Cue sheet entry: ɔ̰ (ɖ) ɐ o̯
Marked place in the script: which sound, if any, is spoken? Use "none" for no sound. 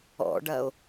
ɖ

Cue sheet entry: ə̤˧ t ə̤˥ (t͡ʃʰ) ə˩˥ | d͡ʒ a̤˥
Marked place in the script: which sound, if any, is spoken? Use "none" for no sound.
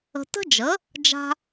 d͡ʒ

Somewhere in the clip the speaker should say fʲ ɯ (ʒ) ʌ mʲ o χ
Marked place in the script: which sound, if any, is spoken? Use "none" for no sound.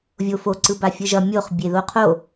ʒ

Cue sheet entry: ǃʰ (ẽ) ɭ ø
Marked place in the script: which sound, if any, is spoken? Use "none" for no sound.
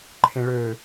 ẽ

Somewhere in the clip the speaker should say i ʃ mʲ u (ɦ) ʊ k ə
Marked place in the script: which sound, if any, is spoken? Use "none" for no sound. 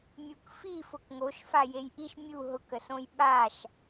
ɦ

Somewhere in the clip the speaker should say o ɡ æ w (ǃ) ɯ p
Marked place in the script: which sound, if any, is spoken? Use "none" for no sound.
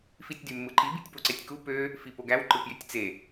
ǃ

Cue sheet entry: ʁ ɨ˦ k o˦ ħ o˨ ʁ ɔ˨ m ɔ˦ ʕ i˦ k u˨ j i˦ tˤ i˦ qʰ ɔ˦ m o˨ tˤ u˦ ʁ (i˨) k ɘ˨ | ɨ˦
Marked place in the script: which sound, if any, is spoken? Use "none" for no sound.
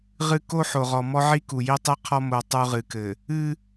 ɨ˨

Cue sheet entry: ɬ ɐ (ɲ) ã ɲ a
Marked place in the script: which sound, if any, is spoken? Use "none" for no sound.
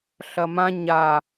m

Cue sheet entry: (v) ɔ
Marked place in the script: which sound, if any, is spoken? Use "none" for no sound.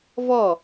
v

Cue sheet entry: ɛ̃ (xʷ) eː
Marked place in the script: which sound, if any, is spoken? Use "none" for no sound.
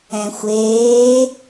xʷ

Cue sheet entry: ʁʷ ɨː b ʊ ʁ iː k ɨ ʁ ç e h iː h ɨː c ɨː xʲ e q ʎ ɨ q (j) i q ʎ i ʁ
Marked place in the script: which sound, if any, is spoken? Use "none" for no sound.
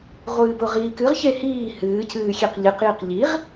j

